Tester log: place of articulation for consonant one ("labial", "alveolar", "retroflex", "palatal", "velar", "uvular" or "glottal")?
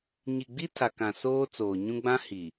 palatal